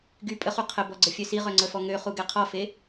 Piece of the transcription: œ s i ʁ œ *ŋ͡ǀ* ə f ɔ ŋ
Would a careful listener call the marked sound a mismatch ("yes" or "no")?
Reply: no